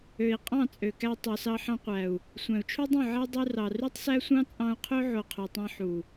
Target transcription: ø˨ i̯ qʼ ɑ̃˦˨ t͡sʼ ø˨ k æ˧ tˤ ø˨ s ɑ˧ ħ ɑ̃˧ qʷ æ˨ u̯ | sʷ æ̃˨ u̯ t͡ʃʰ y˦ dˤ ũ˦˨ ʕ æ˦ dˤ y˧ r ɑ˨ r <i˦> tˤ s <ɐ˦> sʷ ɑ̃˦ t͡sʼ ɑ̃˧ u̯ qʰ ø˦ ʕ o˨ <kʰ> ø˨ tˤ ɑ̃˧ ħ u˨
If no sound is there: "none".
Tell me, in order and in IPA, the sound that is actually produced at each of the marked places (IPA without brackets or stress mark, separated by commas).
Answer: y˦, æ˦, qʰ